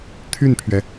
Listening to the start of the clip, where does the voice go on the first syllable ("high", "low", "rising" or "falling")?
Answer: falling